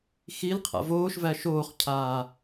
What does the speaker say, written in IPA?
xil qʰa̰voːʃvæ ʃoːχcʰaː

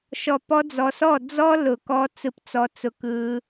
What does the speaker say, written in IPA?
ʃɔ˨pɔ˧d͡zɔ˨sɔ˦˨ d͡zɔ˦lʊ˨kɔ˧ t͡sɯ˧pt͡sɔ˧t͡sʊ˧ kɯ˧

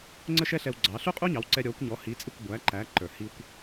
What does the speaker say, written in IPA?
ŋ͡ǀə˥ʃɛ˥ɬɛ˧wɡ͡ǀɑ˩˥ ɬu˥qʼu˥ɲɑ˩˥wǀɛ˧ ɾʲɔ˩˥kʷ ɲɔ˩˥hi˩˥t͡sʼɪ˥˩kʷ ɡʷæ˩˥ǃæ˩˥ ǃə˞˩hi˧kʷ

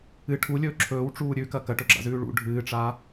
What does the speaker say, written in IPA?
ɨ ʈʰulʲɵː ǁʰɵːwʈ͡ʂuː ɾʲʉkɐ kɐʈɵɡ͡ǁa̰zʉː ɭṵ ɖʱɨːʈ͡ʂa

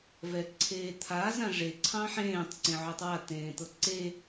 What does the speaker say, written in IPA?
vɛǀʰeːt̪ʰa zãʐe ǀʰɑ̃ħẽːtˤ ǀẽʕotˤwa t̪ẽːt̪ɤǀe

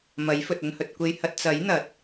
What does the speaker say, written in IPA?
mɐ˨˥jfɵ˨t̚ ɵ˧nhɵ˨t̚ kʷe˧jhɐ˧t̚ t͡sɐ˨˥j n̪ɐ˨˥t̚

